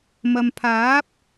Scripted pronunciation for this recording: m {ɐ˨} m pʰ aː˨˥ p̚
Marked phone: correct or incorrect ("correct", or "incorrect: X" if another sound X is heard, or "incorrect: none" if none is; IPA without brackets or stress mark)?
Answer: correct